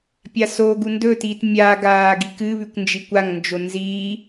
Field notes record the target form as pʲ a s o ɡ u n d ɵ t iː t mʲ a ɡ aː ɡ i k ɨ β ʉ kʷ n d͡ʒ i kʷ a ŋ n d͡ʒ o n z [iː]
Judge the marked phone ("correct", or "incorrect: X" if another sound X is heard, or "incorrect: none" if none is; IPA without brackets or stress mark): correct